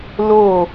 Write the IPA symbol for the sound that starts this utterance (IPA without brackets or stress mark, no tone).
l